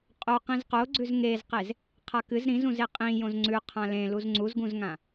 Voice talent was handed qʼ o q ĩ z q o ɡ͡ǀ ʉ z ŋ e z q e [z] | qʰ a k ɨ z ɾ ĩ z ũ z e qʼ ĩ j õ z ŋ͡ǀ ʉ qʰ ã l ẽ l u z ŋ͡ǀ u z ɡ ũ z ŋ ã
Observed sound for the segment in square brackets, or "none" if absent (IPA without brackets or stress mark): z